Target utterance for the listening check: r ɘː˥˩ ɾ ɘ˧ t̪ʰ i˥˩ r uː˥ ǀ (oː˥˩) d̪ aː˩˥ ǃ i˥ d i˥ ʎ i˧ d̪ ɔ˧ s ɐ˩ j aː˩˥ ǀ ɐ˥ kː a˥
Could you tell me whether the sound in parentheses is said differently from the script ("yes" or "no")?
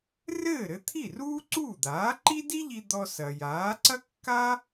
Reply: yes